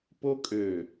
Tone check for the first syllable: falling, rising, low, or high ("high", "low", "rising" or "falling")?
high